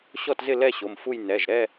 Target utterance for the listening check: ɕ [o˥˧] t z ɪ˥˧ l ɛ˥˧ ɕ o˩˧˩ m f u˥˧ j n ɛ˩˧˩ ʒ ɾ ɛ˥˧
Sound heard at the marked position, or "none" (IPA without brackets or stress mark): ɔ˥˧